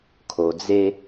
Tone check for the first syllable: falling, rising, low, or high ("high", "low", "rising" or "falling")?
low